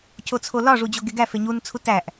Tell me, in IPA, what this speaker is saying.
cʰ o t͡sʰ o l ɒ ʐ u d͡ʑ o ɡ e ɡ æ f e ɲ u n t͡sʰ u t æ ʔ

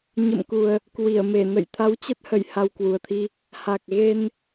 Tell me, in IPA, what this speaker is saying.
ɲ ə̰˧˨ m k u˨˩ ə̯ | k w i˧˩ ə̯ m e˧˩ n ə̰˧˨ j t̪ʰ a˨˦ w t͡ɕ ə˦˥ t̚ h ə˧˩ j h a˧ w k w u˨˩ ə̯ t̪ʰ i˧ | h a˨˩ k̚ ɣ e˧ n

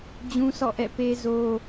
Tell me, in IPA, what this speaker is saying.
d͡ʑ ũ˦ sʰ ɔ̰˦˨ ʔ ɛ̰˦˨ p e˦ z o˦

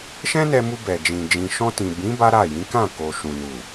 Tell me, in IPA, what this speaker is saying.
ʃ ɛ̃˦ n ɛ˧ m u˧ b ɛ˨ d͡ʒ ĩ˨ d͡ʒ ĩ˨ ʃ ɔ̃˧ t ĩ˨ b ĩ˨˦ b a˦ ɾ a˦˨ j ĩ˨˦ k ã˦˨ k o˨ ʃ ũ˨ n u˨

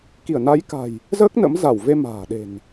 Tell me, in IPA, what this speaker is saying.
k i˧˩ ə̯ n a˨˦ j k a̤˨˩ j | z əː˦˥ k̚ n ə̰˧˥ m z a˧˩ w v e˧ m a̤ː˨˩ ɗ e̤˨˩ n

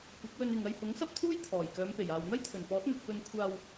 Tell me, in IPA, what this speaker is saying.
kʷ ɐ˨˥ k̚ w ɵ˧ n ɪ˨ ŋ ɐ˧ j h ʊ˨˥ ŋ s ɐ˥ p̚ t̪ʰ uː˥ j t̪ʰ ɔː˨˩ j k œː˨˧ m p e˨˩ j aː˨ w n̪ ɐ˥ j t̪ʰ ɵ˨˩ n p ɔː˨˥ t̚ n̪ ɵ˨ t̚ p ɵ˧ n kʷʰ aː˧ w

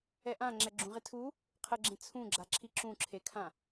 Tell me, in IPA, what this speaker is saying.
ɛ ʔ ã ŋ͡ǁ ɛ ɡ͡ǁ ũ ʁ e tʰ u | qʰ ə ɡ͡ǁ ẽ t͡sʰ ũ ɡ͡ǁ a ǁʰ i ǁ ũ ǁʰ e kʰ ã

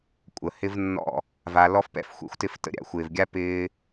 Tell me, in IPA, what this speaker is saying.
kʷʼ ə˨ h ɪ˦ v nː ɔ̰˦˨ | v a˧ l ɔ˦ f p ɛ̰˦ f xʷ ɛ̰˧ xʷ t ɪ˦˨ f t ə̰˦ ɾʲ a̰˦ xʷ ɪː˨ v ɡʲ a˦ p ɪː˧

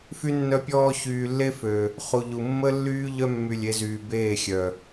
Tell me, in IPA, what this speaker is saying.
f y˦ nː œ˦ pʲ ɔː˦ ç yː˨ lː e˦ f ø˨ | χ u˨ ʎ u˨ mː ə˦ lː yː˦ ʎ œ˦ mː y˨ lʲ e˨˦ z yː˨ b eː˦˨ xʲ œ˨

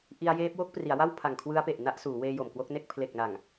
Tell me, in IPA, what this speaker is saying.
ʔ i˧ a̯ j eː˦˥ p̚ w o˦˥ k̚ p r i˩˦ a̯ w a˥˩ w pʰ a˨˩ ŋ kʰ w ɯ˦˥ a̯ p e˨˩ ʔ n a˥˩ ʔ s uː˩˦ w eː˧ j o˨˩ m k w o˦˥ k̚ n e˥˩ k̚ pʰ l e˨˩ k̚ n a˨˩ ŋ

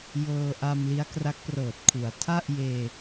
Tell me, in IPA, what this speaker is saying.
j ɤː˧ ʔ a˧ m l i˦˥ a̯ k r a˦˥ k̚ p r ɤː˨˩ t̚ kʰ u˩˦ a̯ tʰ a˥˩ ʔ j eː˧

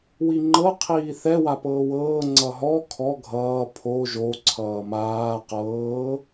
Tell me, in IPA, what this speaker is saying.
w i ŋ͡ǃ ɤ qʰ iː θ ɛ w a p ɤː w ɤː ŋ͡ǀ ʌ ɦ ɔ kʰ ɔ ɡʱ ʌː pʰ o ʒ o ǀʰ ʌː m aː q ɤː

